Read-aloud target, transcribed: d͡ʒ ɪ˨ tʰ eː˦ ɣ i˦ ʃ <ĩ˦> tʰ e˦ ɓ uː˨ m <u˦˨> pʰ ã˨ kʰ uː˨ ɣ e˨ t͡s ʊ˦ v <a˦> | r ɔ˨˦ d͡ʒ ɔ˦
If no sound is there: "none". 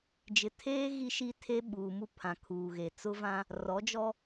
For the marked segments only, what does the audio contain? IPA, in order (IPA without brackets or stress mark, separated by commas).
i˦, u˦, ã˦